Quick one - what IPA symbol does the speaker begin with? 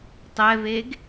tˤ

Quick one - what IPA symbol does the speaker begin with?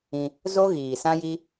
ĩ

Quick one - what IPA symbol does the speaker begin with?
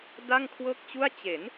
d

